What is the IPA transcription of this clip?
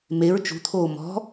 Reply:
m e ɹ t͡ʃ ṳ t̪ʰ oː m ɔ̤

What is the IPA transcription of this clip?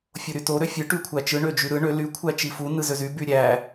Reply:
fʲ o ɾ y t o ɾ ø fʲ ɯ ʈ y kʷʰ æ t͡ʃ ɯ ɳ ø d͡ʒ y ɾ ɯ ɳ ø l y kʷʰ æ t͡ʃ i f u n ɯ z ø z y b y ɾʲ æ

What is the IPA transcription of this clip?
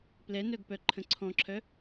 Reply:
p l ɛ n œ ɡ p œ ǃʰ ə̃ ǀʰ ɔ̃ ǁʰ œ

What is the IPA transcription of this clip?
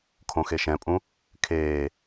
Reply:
kʰ õ x e ʃ ɛ̃ pʼ ũ | kʰ eː

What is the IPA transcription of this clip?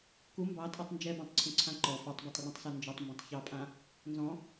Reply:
k u m b ɑ tʼ ɔ tˤ n d͡ʒ ɛ b ã tˤ ǀʰ ũ ǀʰ ã ǃ ɔ f ɑ tˤ b a tˤ r ũ tˤ s a n d͡ʒ ɔ tˤ m b ũ tˤ ç ɑ pʼ ã | n z ɔ̃

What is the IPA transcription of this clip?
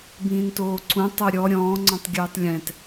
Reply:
b ĩː n t oː ǀ ũ tˤ o ɾʲ ɔ ɾʲ ɔ̃ː ŋ͡ǀ ɔ̃ tˤ ɡʲ ɯː tˤ lʲ ɛ̃ t

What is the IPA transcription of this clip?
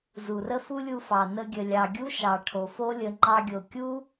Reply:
z u˨ r ə˦ f u˦ lʲ u˧ f ɑ˨ n ə˧ ɡʲ ə˨ lʲ ɑ˨ ɡʲ u˦ ʃ ɑ˨ ʈʰ o˨ f o˦ lʲ ə˧ ŋ͡ǃ ɑ˧ ɡʲ o˨ kʲ u˦

